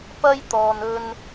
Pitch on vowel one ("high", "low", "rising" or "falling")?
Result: high